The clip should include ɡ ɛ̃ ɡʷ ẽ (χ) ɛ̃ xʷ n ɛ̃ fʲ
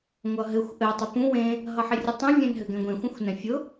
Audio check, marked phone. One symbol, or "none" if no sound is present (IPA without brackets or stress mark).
xʷ